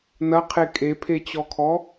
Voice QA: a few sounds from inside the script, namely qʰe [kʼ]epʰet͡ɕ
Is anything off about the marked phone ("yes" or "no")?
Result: no